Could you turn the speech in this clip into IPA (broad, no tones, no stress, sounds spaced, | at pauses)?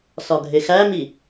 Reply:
s ɒ ɡʱ e x æ m i